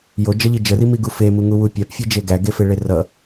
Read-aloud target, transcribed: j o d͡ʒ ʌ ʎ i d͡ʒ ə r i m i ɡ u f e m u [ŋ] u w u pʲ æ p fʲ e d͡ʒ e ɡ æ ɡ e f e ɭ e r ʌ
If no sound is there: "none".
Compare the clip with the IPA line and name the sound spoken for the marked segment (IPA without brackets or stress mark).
ŋ